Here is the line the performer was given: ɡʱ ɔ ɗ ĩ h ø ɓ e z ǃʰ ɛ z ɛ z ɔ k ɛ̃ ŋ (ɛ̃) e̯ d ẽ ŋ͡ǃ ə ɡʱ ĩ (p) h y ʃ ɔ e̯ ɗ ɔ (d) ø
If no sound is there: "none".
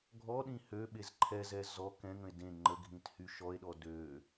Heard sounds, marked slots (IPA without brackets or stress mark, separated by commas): ə̃, t, d